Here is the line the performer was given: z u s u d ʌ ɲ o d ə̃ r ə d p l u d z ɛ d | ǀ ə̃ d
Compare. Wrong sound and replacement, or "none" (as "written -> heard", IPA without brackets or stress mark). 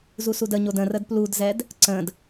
ʌ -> ə